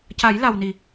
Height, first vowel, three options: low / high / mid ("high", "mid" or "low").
low